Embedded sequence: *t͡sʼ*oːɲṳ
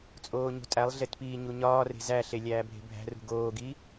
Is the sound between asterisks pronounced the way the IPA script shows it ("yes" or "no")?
yes